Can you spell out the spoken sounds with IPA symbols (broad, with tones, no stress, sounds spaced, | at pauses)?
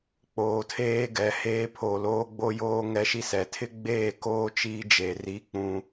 k͡p oː˨ tʰ eː˦ ɡ ɛ˨ h eː˦ pʰ o˨ l oː˦ ɡ͡b o˦ j oː˦ ŋ ɛ˦ ʃ i˦ s ɛ˨ tʰ ɪ˦ ɡ͡b eː˦˨ k oː˦ t͡ʃ iː˦ d͡ʒ eː˨ r i˦ k͡p ũ˦